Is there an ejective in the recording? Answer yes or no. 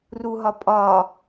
yes